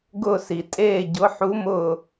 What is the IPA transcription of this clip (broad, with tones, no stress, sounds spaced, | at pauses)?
ɡ ʊː˦˨ s i˨˩ tʼ eː˦˨ ɟ ʊ˧˥ ħ u˧˥ m ʊː˦˨